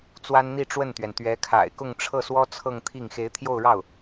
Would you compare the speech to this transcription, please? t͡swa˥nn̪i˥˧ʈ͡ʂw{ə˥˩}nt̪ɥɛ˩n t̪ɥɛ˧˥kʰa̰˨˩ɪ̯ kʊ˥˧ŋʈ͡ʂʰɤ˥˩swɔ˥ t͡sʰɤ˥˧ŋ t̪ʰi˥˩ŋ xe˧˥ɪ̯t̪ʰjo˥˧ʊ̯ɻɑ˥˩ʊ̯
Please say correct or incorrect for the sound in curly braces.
correct